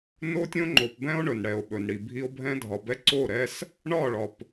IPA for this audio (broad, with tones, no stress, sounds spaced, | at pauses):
n o˦ tʲ õ˦ ŋ͡ǃ o˨ p b ɛ̃˦ o̯ ɳ ɵ˨ n ɽ ɛ˨ o̯ ɓ ɵ˨ n ɽ i˨ bʱ i˦ o̯ bʱ ɛ̃˦ dʱ ɒ˨ b ɛ˦ ǀ o˦˨ ɾ ɛ˦ s | ɳ ɒ˦˨ ɭ ɒ˨ p